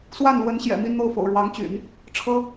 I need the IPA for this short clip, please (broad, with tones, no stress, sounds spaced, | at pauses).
s w a˥˩ n l w ə˧˥ n ɕ j ɛ̰˨˩ m i˥˧ n n̪ o˥˩ ʊ̯ f o̰˨˩ ʊ̯ ɻ w ɑ˧˥ ŋ t͡ɕ y̰˨˩˦ n | ʈ͡ʂʰ ɤ˥